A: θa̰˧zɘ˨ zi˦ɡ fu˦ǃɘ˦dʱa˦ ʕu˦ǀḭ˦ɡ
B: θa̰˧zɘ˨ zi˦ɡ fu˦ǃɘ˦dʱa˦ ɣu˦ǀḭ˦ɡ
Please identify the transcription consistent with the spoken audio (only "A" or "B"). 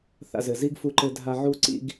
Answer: A